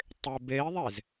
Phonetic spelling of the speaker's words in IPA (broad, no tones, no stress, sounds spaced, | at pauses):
tˤ ɪ b e i̯ ðˤ e z